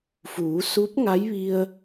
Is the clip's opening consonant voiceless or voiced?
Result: voiceless